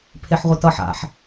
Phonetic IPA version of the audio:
pʰ e ħ ʁʷ e t ʌ ħ a̰ ħ

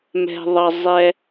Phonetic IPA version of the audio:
m ɛ̤˧ ðˤ ʌ˧ zˤ ɛ˧

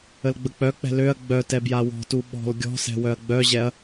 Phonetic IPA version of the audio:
ə l ɡ͡b ə k͡p œ k͡p ɛ̤ l ø ɐ̯ ɡ͡b œ t ɛ b j a w ɔ̤ t u ɓ ɔ̤ l ɡʲ ɔ̤ s ɛ̤ w œ ɐ̯ ɡ͡b œ ʑ ɛ ɐ̯

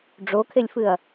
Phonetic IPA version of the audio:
ɖ͡ʐ o kʰ e lʲ f ɨ ɐ̯

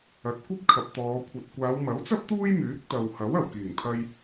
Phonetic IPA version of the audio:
ɐ˨˥ t̚ kʷ ɐ˥ p̚ kʰ ɐ˨ p̚ t̪ ɔː˨˧ kʷʰ ɐ˨ t̚ kʷ aː˨˧ w m ɐ˨˥ w t͡s ɐ˥ p̚ t̪ uː˥ j m yː˨˥ k̚ t̪ ɐ˨ w h ɐ˨˥ w ɐ˨˩ w k iː˨˩ ŋ t̪ʰ ɐ˧ j

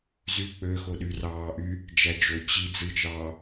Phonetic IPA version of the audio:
z y k͡p ø x o ɗ y r ɑː ʔ y | d͡ʒ æ d͡ʒ o t͡ɕ i d͡z ɯ t͡ʃ ɑː

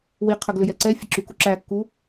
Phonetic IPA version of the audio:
w i qʰ ə ɡ l ʏ j ɛ ǀ ɛ fʲ ə ǁ y k u ǁ æ kː u

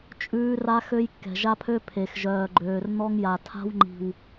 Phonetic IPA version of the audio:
t͡ʃʼ ʉː˦ r a˦ x ø˦ j kː ɛ̤˨ ʒ a˦ pʰ ø˦ pʰ e˨ x ʒ œː˨ ɡ͡ǃ øː˨ r n̪ ɔ˦ ŋ j a˨ tʰ a̤˦ w ŋ͡ǃ i̤˨ w

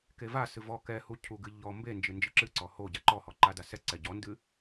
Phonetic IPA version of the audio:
k e v a s ɨ v ɔ k ɛ h u cʰ u ɡ ɨ ʎ ɔ m b e n d͡ʒ ɨ n d͡ʒ ɨ ǁ ɨ ǀ ɔ h o ɟ a ǃ ɔ h ɔ ǃ a d a s ɛ ǀ ɛ ɟ ɔ n d ɨ

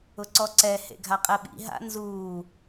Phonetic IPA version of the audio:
ʊ ǀ ɔ ǀ ɛ h ḛ ɡʱ a qʼ ɛ ɓ ḭ ɦ a̰ n z uː

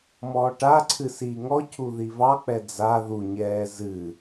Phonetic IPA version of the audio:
m ɔː ʈ a ǀʰ ɨ s iː ŋ ɔ cʰ u ð i v ɑ k͡p ɛ d͡z a ð u ɲ ɛː z ɨ

